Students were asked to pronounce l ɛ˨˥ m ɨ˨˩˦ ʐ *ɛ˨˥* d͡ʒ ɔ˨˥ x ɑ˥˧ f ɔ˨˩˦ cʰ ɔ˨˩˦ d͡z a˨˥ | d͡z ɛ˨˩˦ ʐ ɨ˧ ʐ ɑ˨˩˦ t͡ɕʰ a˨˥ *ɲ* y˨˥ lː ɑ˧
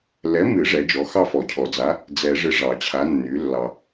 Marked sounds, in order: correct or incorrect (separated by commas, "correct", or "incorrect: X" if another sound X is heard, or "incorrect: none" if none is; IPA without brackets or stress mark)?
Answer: correct, incorrect: nː